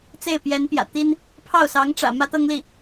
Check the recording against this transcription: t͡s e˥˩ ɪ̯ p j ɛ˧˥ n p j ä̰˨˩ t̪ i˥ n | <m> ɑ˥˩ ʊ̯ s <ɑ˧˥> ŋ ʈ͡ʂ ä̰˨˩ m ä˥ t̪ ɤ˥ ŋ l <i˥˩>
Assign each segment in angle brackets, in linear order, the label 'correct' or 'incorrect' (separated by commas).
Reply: incorrect, correct, correct